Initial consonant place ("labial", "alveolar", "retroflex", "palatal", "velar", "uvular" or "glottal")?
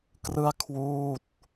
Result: velar